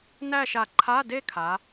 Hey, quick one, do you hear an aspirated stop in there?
yes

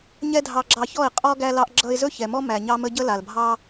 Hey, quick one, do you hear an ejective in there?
yes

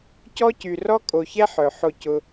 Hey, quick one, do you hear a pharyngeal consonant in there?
yes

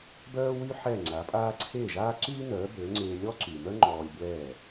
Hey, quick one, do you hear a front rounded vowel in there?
yes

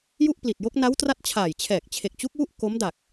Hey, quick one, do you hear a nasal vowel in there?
no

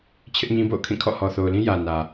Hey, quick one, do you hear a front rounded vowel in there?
no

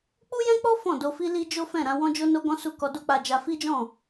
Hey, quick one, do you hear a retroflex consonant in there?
no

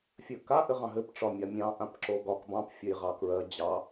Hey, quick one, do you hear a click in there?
yes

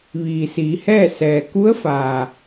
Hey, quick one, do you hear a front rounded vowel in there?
no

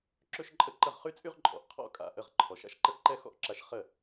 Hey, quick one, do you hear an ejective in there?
yes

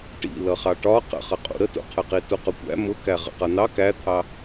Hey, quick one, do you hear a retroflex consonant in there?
yes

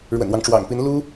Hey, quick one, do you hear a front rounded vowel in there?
no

